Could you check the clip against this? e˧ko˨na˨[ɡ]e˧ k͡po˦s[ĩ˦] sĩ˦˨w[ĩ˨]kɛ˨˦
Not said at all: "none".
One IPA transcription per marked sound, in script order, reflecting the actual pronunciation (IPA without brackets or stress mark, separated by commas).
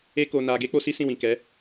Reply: ɡ, i˦, ĩ˨